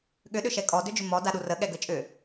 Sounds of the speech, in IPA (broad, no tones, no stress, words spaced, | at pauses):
ɠʏ ɗʏʃɛkʼɔ dʏd͡ʒʏmɔ daɗurə ɠɛɡət͡ʃʼʏ